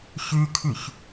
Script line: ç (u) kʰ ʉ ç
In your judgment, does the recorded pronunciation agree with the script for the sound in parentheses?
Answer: no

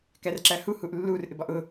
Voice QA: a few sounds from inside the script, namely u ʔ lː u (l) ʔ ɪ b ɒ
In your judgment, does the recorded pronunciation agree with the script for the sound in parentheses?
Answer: no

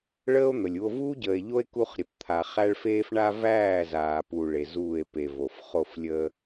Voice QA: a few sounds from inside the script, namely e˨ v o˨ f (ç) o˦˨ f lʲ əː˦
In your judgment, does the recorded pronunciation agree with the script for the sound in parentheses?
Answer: no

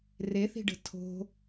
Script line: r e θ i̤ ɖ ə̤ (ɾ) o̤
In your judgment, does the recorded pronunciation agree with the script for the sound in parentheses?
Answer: no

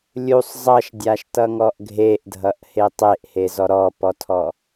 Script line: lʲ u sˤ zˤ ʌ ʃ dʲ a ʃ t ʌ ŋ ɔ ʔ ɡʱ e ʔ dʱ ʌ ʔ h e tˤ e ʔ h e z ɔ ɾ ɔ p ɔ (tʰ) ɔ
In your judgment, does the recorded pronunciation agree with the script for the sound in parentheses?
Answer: yes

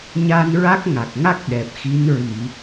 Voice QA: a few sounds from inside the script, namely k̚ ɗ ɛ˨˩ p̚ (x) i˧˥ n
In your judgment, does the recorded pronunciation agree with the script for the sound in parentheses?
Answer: yes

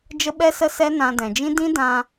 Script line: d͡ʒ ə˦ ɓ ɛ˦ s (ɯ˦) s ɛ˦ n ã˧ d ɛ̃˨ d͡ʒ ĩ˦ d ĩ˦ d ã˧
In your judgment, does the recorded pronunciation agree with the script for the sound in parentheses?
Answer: no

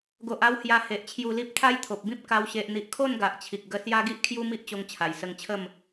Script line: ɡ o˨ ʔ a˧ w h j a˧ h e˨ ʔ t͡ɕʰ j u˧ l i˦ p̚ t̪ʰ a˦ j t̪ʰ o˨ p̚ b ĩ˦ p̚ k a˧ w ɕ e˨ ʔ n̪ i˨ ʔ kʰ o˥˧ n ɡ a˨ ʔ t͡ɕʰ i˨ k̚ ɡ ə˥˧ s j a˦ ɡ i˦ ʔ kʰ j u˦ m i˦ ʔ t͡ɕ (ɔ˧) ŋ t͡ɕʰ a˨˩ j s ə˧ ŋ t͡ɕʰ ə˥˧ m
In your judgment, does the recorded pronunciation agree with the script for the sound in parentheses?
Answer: no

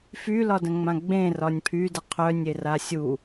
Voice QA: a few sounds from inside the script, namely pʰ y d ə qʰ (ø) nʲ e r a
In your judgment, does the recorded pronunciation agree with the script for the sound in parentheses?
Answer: no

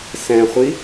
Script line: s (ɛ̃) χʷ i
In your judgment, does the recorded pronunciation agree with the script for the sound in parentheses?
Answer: yes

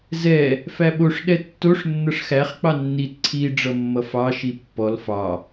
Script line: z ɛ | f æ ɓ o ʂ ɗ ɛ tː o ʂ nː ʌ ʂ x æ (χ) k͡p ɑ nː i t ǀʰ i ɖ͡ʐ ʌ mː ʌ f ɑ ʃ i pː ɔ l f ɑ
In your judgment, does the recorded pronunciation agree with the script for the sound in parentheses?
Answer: yes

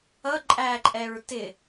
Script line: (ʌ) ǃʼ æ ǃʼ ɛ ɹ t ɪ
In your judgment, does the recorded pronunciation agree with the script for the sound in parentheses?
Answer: yes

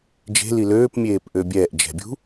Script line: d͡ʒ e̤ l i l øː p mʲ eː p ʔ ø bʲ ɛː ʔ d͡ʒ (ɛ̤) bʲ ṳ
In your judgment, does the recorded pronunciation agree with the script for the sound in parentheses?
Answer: yes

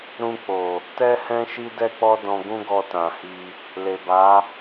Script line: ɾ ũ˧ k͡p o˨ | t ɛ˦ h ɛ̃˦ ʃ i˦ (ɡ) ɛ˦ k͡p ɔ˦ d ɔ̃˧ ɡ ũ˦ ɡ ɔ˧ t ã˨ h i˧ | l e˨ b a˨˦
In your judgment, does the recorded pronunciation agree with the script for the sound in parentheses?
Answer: no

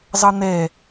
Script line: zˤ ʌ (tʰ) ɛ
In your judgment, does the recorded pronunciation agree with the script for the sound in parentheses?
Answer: no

